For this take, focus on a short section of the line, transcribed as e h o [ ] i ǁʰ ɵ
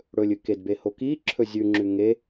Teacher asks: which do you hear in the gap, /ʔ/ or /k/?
k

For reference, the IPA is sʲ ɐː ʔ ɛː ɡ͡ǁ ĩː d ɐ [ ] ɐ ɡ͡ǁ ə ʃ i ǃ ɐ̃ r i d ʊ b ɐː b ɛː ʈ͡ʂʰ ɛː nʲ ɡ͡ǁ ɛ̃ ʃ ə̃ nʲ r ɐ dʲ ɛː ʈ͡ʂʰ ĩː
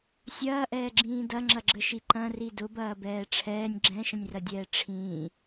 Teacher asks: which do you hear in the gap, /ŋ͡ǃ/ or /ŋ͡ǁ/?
ŋ͡ǁ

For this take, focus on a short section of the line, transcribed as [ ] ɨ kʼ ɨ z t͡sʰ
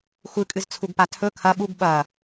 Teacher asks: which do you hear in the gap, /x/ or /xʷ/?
xʷ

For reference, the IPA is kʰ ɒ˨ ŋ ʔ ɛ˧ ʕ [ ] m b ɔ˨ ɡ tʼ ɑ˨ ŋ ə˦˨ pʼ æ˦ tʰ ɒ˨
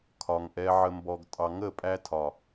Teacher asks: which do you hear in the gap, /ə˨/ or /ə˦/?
ə˨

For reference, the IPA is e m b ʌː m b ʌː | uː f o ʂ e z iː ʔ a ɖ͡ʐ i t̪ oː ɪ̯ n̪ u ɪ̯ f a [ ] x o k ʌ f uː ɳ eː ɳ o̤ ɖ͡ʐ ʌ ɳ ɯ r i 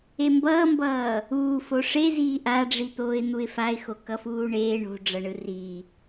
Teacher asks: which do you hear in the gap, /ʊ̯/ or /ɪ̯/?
ɪ̯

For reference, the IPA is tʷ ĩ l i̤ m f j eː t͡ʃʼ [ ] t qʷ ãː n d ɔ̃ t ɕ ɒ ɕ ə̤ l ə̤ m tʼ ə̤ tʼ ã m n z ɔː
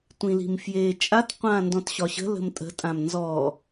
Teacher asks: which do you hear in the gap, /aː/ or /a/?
a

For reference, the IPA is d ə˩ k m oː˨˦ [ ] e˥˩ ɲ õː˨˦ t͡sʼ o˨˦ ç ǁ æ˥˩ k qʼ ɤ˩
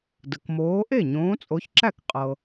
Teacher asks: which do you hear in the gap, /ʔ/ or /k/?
ʔ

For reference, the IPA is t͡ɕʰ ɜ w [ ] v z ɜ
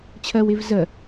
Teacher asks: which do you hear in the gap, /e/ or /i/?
e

